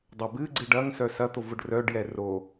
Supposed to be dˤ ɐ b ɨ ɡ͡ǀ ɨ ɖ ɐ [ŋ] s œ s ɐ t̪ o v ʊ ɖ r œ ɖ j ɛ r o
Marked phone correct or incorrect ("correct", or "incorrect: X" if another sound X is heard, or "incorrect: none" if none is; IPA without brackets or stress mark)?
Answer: correct